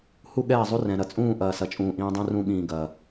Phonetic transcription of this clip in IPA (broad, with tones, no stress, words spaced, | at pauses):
hu˦ɠɛː˦˨zˤu˦ rɛ̃˨ɾɐ˨t͡sʼũː˦˨ ʔɐː˨sɐ˨t͡ʃʼũː˨ ʔĩː˦dˤũ˦rũ˦ ɠĩː˨ɡɐː˨